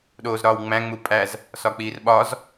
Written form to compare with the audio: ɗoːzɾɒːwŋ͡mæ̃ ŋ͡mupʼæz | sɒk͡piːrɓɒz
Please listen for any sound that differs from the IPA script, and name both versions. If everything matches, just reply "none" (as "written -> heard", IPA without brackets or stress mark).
none